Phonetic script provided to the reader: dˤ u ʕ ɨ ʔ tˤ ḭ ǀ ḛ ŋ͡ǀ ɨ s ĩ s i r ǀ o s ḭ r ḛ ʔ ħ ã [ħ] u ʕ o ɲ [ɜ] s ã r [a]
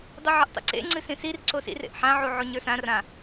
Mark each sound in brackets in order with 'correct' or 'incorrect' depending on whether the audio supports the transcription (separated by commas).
incorrect, incorrect, incorrect